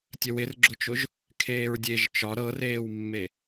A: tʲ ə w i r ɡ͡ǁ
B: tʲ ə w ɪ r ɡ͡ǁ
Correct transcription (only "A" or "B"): B